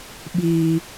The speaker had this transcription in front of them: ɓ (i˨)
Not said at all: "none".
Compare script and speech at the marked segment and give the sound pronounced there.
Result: iː˨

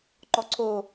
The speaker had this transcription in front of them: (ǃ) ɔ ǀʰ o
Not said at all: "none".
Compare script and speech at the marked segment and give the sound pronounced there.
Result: ǃ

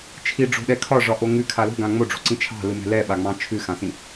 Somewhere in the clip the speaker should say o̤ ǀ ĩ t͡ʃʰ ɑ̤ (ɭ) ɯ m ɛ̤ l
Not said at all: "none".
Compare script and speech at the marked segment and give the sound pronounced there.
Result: l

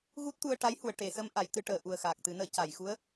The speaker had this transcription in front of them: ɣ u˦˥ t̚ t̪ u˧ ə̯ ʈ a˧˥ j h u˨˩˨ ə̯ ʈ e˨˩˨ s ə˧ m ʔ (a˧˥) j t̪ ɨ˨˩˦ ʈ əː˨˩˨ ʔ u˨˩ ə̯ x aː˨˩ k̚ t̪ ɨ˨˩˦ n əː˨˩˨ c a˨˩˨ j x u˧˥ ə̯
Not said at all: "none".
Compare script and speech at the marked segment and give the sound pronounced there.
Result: a˨˩˦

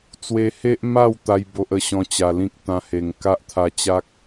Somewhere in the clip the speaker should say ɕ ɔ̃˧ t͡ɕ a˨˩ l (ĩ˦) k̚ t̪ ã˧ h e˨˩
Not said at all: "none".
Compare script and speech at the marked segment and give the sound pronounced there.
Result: ĩ˦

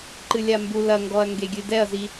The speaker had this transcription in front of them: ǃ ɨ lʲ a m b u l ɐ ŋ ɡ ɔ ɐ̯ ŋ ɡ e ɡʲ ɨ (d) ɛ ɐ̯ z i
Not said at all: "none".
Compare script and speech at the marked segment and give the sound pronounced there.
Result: d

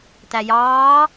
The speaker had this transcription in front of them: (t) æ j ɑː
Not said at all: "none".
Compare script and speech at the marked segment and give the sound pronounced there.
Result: t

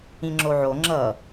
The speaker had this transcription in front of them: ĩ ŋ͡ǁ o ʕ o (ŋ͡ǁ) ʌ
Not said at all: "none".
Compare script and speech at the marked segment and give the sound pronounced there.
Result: ŋ͡ǁ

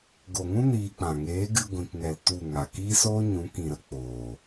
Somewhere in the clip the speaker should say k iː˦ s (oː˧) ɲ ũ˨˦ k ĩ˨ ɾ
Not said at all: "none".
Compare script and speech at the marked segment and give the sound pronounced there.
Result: oː˦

